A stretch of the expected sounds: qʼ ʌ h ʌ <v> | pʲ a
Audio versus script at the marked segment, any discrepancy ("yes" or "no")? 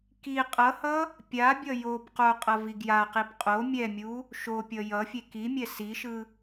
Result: yes